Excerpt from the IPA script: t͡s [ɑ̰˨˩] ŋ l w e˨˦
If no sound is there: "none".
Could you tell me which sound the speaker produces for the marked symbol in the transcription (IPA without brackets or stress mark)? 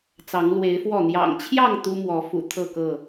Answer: ɑ˨˦